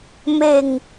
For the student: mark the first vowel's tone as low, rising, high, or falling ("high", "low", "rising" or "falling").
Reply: low